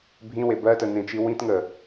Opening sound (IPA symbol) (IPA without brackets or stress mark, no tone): bʱ